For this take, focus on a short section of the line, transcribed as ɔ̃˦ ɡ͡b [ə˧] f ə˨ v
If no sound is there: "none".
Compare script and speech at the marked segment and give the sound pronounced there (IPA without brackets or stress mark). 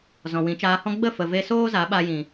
ə˦˨